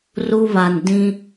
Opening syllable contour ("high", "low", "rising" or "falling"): high